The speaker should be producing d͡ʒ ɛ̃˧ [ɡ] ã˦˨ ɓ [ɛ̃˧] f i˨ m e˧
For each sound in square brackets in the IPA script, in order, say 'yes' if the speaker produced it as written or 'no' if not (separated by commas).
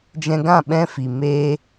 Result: yes, yes